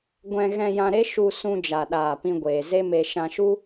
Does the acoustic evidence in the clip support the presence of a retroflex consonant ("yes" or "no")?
no